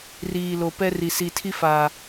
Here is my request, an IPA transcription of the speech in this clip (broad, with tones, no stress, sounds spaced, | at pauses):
r iː˨ l o˨ p ɛ˦ r i˨ s i˨ tʰ i˦ f aː˨